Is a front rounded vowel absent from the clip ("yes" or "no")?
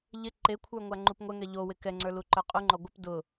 yes